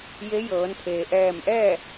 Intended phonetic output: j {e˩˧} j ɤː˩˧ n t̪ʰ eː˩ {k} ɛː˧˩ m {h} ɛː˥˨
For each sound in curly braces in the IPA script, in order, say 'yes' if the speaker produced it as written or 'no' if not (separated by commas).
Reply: no, no, no